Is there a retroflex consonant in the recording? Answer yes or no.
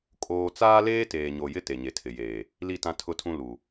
no